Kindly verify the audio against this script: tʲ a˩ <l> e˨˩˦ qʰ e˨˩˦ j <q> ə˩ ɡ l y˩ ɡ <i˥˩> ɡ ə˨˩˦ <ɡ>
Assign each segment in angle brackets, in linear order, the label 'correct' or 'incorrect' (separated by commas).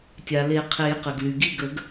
correct, correct, correct, correct